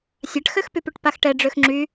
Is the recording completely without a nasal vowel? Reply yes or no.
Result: yes